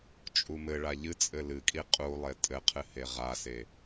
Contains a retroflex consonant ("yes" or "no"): yes